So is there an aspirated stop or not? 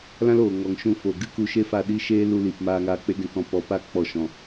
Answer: no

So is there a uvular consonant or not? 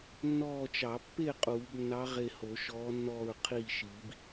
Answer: yes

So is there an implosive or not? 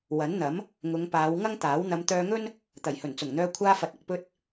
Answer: no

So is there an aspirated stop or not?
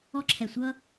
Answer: yes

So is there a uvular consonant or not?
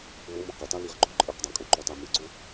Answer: yes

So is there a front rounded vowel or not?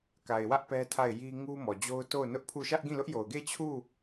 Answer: no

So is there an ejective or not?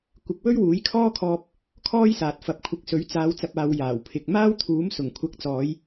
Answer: no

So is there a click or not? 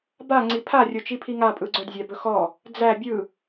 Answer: yes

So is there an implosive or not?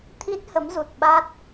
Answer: yes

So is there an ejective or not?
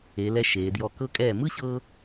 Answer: yes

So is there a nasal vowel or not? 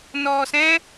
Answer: yes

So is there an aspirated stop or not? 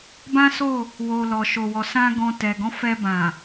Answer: no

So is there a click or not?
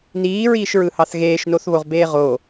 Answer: no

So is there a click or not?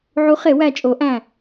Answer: no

